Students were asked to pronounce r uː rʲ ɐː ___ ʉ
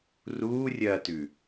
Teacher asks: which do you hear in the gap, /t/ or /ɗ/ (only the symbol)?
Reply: t